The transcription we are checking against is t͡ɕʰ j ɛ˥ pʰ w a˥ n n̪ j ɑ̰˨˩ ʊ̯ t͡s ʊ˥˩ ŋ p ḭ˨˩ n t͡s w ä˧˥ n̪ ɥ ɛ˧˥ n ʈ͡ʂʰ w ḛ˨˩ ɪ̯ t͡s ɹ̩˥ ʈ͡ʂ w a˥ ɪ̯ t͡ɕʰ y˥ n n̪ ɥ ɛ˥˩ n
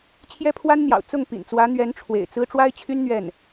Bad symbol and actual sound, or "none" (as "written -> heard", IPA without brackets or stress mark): none